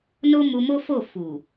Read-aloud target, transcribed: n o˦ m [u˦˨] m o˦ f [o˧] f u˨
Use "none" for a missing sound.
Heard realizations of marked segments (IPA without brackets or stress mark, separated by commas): u˧, o˦˨